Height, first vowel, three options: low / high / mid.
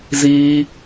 high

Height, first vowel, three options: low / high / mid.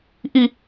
high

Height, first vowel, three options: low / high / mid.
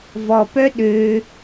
mid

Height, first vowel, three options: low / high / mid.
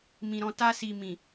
high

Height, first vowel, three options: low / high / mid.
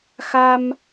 low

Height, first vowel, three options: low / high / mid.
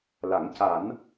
low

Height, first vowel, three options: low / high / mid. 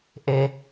mid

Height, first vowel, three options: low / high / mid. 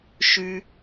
high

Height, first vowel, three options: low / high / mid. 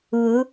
high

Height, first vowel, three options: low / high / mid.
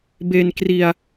mid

